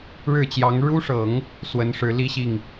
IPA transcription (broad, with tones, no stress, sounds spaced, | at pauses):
ɻ ɻ̩˥˩ t͡ɕ j ɑ˧˥ ŋ ɻ u˥ ʂ ɤ˨˩˦ ŋ | s w ə˧˥ n ʂ ɻ̩˧˥ l i˥ ɕ i˥˩ ŋ